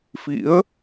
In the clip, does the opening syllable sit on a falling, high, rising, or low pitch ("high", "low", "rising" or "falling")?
rising